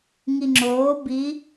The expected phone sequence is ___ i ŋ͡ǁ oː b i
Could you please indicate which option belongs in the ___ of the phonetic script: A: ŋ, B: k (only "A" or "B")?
A